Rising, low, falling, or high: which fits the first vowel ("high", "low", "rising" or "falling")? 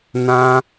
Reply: high